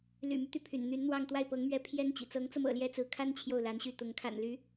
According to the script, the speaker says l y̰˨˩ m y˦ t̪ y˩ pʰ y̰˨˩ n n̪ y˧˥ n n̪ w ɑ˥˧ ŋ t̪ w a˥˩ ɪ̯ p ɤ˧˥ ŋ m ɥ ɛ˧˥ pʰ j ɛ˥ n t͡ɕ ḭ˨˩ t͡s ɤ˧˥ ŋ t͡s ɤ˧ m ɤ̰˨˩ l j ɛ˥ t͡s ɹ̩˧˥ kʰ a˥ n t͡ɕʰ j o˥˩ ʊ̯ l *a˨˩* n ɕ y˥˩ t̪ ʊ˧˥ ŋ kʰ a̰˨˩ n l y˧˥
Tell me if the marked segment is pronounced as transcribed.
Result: no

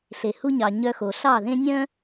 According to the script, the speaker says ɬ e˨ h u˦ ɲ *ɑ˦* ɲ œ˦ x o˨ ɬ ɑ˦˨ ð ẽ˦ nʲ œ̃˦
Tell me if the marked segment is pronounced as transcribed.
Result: no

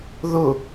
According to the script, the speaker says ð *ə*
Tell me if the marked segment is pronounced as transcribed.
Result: no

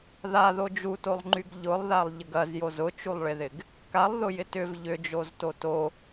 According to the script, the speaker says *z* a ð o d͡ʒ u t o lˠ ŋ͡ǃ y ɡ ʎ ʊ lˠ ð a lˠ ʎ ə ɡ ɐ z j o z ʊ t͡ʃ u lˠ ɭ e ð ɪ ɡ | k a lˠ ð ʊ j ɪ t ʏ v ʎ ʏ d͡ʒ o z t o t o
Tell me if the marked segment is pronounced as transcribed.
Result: no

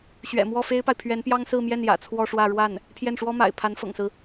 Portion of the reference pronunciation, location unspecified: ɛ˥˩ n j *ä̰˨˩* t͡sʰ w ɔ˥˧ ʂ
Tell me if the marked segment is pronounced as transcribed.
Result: yes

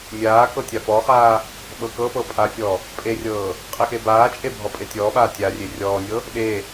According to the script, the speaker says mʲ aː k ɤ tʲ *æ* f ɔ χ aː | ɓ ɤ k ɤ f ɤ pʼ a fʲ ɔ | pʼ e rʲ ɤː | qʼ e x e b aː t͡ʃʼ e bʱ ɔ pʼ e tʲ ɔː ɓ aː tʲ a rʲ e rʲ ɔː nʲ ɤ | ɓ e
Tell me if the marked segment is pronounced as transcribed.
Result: no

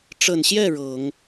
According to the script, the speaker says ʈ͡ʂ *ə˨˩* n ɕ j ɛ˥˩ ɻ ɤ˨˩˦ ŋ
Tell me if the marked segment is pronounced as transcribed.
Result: yes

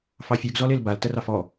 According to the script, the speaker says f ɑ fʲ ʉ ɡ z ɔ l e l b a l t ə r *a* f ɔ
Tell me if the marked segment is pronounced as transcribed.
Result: no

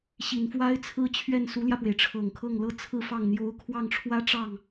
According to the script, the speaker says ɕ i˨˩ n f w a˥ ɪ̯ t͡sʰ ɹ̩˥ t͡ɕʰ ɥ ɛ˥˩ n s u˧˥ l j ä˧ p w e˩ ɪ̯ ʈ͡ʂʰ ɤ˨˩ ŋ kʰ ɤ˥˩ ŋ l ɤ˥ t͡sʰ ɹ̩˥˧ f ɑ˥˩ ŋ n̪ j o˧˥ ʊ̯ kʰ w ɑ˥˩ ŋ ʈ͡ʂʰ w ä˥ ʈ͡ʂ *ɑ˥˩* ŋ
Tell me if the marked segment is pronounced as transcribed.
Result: yes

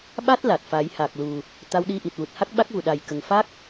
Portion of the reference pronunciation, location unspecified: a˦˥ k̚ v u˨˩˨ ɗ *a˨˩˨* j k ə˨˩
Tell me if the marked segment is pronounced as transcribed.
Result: no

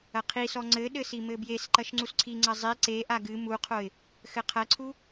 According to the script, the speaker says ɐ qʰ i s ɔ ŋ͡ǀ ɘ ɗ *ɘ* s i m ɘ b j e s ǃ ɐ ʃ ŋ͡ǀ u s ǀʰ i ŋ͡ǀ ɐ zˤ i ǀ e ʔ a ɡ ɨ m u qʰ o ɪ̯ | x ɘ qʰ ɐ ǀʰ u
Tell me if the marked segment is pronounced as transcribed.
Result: yes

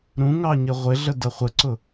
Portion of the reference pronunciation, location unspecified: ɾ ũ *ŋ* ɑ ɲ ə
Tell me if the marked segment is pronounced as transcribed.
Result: yes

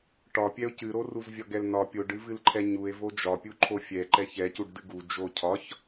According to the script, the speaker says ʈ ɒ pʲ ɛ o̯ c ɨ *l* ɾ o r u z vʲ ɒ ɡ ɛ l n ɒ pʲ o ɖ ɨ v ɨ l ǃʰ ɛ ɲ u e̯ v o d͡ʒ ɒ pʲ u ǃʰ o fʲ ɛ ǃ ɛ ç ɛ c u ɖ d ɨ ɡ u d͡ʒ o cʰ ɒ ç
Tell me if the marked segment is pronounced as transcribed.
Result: no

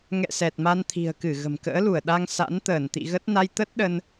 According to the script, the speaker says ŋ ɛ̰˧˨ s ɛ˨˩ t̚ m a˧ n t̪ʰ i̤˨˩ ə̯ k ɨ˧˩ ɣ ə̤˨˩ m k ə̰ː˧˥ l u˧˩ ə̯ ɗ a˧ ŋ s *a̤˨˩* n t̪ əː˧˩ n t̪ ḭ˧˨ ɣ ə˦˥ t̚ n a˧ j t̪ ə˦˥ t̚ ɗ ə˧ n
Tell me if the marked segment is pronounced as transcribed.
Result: no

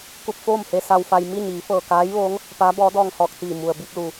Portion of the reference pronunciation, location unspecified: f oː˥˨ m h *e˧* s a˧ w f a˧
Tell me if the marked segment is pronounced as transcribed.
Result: yes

